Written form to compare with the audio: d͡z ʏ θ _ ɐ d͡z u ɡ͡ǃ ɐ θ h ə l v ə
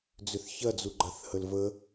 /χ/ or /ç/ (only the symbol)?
ç